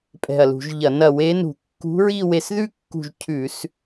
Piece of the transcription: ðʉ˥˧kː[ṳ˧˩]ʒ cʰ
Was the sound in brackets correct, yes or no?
yes